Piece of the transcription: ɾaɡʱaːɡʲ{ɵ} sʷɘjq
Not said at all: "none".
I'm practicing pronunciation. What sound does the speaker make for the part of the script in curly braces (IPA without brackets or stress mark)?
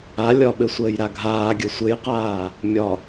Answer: ə